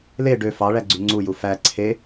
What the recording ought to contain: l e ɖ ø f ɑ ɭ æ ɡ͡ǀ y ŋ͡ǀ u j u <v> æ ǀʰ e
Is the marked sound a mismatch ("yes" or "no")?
yes